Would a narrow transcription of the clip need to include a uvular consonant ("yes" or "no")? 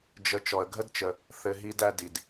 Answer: no